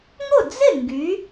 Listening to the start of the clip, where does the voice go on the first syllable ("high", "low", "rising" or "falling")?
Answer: falling